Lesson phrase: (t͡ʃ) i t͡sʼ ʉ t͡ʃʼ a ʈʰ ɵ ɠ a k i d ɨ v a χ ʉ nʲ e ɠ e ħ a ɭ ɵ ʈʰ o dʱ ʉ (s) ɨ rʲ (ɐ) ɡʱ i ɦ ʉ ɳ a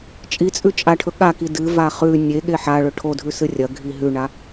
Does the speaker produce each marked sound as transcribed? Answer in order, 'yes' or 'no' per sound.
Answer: no, yes, yes

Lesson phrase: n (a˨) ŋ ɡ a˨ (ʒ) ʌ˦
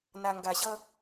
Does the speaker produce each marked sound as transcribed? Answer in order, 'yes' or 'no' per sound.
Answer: yes, no

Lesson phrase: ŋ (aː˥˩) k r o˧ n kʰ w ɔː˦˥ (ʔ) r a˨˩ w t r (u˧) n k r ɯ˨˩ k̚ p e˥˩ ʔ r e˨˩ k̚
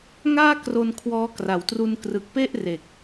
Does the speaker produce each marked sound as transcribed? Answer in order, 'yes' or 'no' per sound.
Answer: yes, no, yes

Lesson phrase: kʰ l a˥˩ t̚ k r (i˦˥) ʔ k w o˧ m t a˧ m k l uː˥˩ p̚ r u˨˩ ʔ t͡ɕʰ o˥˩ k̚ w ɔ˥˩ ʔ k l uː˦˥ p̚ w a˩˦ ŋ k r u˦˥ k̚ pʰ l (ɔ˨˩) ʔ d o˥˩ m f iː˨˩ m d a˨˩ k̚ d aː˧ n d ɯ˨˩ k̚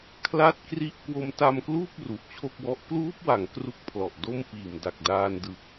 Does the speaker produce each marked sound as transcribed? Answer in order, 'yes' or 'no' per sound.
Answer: no, yes

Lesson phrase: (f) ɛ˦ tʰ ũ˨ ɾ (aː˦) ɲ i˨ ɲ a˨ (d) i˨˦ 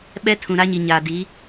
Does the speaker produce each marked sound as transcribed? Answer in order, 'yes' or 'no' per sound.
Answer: no, no, yes

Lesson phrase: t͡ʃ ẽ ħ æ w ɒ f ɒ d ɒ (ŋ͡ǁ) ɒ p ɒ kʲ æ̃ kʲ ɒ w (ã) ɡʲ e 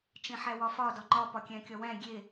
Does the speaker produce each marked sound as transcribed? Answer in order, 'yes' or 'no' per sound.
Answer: no, no

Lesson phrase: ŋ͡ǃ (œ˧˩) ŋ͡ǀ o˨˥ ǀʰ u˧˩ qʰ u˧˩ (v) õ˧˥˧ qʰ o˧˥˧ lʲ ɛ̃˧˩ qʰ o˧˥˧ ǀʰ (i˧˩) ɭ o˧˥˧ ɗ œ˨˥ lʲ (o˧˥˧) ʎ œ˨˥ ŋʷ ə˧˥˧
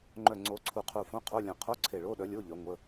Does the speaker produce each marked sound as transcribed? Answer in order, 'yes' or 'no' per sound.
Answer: yes, no, no, yes

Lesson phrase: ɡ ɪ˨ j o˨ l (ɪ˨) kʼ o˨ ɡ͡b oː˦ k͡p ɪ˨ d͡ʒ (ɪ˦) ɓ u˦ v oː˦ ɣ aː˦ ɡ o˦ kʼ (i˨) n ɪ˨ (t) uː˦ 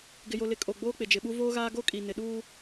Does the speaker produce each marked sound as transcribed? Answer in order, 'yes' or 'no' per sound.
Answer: yes, no, yes, no

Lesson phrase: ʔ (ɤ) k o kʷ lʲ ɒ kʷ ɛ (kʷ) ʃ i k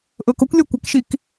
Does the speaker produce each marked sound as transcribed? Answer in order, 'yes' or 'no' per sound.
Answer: yes, no

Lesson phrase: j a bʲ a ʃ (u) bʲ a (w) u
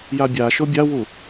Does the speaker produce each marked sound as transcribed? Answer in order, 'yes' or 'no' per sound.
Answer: no, yes

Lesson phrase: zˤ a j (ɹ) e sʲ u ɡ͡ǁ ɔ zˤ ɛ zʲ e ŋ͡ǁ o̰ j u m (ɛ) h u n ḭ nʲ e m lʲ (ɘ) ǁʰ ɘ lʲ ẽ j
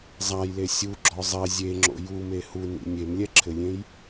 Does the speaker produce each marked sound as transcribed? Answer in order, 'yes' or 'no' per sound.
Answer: no, no, no

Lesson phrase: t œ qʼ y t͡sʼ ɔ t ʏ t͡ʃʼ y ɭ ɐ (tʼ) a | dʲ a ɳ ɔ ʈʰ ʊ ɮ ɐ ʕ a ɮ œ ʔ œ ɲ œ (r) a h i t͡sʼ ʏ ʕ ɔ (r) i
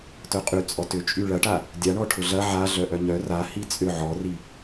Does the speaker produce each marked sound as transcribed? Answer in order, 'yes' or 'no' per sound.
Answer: no, yes, yes

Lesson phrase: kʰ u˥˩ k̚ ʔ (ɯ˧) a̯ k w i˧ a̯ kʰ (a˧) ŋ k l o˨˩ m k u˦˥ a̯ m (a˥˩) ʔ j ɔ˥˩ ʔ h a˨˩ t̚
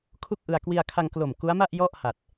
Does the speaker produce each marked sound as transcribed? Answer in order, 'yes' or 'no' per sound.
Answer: yes, yes, yes

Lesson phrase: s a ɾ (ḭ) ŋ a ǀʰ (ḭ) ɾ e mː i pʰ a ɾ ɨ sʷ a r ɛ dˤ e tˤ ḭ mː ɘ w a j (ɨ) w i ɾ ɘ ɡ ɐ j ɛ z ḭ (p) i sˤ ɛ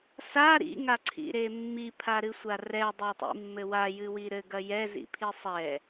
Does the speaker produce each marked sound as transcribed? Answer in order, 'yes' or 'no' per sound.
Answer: yes, yes, yes, no

